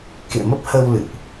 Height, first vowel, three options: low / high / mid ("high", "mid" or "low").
mid